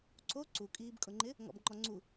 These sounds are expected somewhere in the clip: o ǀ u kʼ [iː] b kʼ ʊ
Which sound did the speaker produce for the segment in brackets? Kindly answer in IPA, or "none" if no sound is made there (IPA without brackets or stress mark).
iː